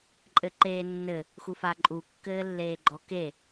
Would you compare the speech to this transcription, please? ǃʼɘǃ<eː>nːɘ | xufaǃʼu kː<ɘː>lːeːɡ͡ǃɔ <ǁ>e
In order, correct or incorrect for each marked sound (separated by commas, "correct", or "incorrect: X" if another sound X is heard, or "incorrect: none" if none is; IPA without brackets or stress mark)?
correct, correct, incorrect: k